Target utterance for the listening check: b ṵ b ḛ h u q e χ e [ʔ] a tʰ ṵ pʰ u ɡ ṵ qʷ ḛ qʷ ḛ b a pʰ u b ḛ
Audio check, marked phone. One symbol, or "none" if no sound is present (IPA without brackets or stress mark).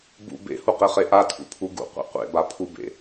ʔ